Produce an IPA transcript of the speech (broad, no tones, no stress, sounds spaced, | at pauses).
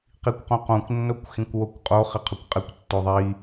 q i kʷ q õ q õ kʷ nː o kʷ x ĩ kʷ w o kʷ qʼ o χ ɪ qʰ ʊ kʷ qʼ ɪ kʷ tː o ðˤ i